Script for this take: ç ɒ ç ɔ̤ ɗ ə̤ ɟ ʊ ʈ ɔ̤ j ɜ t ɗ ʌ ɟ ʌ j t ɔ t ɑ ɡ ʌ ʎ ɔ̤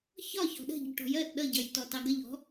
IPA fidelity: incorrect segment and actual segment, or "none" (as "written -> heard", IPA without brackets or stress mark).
none